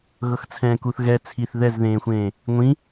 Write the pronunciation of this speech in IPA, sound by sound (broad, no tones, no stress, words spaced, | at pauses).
ɣɤxt͡sʰɛ̃ːkuθ ɣɛ t͡sʰiθ ðɛzðẽːxʷẽː | ŋʷĩ